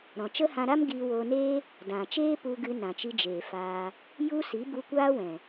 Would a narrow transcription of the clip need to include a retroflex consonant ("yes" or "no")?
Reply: no